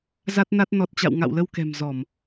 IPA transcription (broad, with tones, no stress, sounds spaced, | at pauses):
z a˦˥ t̚ n a˦˥ t̚ n ɔ˨˩ t̚ t͡ɕ a̰˧˨ w ŋ a̰˧˨ w l ə˧ w k ɛ̤˨˩ m z ɔ˧˩˨ m